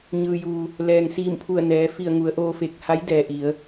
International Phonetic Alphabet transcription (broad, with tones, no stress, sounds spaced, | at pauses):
ɲ ɯː˩ j uː˩ | l ɛː˩ ŋ s iː˧˩ m pʰ u˧˩ ə̯ n ɛː˩˧ f i˧˩ ə̯ ŋ u˩˧ ə̯ ʔ oː˧ f e˧˩ k̚ h a˧˥ j d ɛː˩ ʔ i˩˧ ə̯